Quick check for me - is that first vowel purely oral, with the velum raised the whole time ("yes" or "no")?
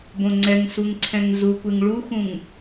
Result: no